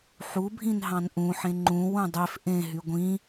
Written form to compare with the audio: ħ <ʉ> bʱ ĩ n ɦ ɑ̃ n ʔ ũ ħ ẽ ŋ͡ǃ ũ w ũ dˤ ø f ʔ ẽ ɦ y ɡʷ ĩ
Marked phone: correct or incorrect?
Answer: incorrect